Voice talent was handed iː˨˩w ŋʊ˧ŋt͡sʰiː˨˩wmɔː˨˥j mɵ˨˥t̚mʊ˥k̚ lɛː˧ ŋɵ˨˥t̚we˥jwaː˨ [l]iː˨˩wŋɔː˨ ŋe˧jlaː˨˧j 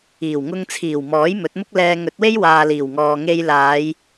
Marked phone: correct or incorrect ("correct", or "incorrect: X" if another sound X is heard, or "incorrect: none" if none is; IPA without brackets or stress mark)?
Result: correct